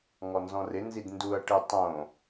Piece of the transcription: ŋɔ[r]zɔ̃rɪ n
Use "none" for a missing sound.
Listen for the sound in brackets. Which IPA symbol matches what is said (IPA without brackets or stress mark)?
n